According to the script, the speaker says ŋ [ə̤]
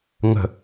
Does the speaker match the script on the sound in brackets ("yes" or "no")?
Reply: yes